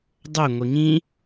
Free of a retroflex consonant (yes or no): yes